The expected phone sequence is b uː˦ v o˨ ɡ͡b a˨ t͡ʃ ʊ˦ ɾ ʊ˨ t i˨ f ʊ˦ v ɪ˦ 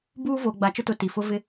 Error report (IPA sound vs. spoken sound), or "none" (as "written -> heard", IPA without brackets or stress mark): ɾ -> t